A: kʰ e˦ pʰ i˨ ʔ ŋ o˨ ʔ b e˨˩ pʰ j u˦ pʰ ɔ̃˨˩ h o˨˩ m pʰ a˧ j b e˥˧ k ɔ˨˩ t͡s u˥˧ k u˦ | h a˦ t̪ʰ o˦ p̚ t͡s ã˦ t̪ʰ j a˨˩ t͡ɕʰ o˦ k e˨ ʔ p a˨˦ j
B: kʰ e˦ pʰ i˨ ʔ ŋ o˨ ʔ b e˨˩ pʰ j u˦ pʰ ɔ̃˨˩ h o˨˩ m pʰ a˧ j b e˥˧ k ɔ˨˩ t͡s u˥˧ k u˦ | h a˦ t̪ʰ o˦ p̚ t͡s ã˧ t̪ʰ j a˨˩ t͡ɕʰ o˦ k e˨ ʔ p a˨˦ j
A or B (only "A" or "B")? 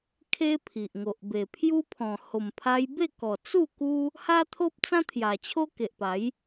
A